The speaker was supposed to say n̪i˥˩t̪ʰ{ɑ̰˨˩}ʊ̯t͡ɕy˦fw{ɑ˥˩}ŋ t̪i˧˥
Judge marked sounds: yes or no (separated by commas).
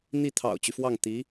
yes, yes